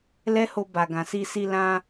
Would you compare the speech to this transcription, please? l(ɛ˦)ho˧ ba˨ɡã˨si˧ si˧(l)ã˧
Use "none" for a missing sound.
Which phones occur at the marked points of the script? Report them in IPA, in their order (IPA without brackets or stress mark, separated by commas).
ɛ˦, l